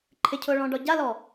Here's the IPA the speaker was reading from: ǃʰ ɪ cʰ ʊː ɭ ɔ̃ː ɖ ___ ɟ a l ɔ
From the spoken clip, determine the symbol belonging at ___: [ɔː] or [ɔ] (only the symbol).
ɔ